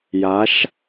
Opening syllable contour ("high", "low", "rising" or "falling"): rising